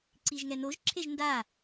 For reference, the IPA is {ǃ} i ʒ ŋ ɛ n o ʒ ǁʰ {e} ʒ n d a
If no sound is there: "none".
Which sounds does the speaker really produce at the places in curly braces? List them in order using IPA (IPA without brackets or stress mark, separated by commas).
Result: ǀ, e